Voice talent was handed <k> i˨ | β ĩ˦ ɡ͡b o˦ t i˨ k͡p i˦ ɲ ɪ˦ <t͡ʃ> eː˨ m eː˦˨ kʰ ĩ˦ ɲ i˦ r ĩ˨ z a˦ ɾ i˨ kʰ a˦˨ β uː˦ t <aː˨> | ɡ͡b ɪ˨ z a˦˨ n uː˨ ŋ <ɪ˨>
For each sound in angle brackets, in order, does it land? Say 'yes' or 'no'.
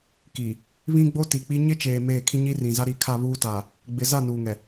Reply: yes, yes, yes, no

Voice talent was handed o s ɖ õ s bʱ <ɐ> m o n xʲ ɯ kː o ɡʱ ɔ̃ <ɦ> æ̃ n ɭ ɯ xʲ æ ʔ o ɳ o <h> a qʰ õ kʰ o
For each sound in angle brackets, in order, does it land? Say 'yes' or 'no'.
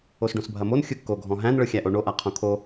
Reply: yes, yes, no

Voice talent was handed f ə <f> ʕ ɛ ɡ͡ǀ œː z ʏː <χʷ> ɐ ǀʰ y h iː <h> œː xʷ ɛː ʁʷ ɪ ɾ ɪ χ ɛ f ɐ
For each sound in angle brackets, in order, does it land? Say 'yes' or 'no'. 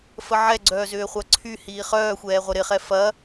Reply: no, yes, no

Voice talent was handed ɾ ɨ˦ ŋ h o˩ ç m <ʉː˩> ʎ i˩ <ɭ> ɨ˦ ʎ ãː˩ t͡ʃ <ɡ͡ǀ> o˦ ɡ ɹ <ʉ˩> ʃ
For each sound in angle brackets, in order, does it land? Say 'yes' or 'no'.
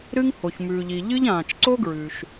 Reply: yes, no, no, yes

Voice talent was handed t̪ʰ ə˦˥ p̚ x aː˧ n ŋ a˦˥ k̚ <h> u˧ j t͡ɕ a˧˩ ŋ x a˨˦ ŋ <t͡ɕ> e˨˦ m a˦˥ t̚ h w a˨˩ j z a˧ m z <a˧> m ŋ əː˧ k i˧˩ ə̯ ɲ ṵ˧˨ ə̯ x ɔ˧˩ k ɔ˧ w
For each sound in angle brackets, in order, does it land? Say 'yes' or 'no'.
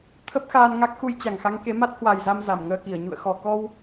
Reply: no, no, no

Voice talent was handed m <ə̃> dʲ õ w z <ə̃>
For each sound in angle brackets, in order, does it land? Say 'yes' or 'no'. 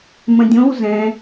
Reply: yes, no

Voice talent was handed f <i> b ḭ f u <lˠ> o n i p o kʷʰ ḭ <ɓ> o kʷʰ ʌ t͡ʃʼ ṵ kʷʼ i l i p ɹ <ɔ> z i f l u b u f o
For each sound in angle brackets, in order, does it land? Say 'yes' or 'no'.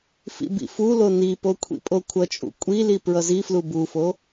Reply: no, no, no, no

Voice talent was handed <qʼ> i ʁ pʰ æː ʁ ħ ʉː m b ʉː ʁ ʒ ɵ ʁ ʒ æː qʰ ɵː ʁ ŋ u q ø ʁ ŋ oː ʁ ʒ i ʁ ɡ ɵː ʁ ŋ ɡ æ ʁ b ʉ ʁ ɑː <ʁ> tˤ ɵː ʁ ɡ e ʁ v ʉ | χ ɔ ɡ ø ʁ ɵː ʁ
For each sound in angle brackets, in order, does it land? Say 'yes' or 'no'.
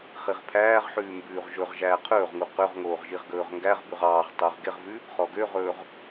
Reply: no, yes

